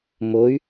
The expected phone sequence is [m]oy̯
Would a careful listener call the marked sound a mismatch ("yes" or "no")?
no